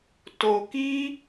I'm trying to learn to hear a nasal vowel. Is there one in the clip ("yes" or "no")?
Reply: no